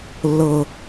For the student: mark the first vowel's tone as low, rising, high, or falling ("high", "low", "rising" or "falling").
low